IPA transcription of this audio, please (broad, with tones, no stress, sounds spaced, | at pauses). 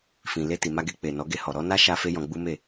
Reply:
f ĩ˨ l e˧ t i˨ m a˧ ɡ e˧ k͡p e˨ n ɔ˨˦ ɡ e˧ h ɔ˨ ɾ ɔ˧ n a˦ ʃ a˧ f e˦ j ɔ̃˧ ɡ͡b u˦ m e˦˨